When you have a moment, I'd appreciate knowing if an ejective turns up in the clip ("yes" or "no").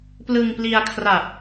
no